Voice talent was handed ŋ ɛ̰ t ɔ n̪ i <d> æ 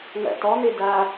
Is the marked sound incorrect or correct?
correct